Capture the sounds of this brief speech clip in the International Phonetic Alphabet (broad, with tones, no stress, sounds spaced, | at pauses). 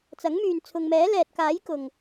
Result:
t͡s ɐ˨˥ ŋ m yː˨ n t͡sʰ ʊ˨ ŋ m ɛː˨˥ l ɛː˨ t̚ k aː˨˥ j k ʊ˨˩ ŋ